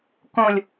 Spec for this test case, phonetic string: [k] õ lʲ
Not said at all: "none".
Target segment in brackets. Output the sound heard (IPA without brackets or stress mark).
k